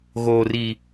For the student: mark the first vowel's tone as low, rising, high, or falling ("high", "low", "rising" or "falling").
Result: low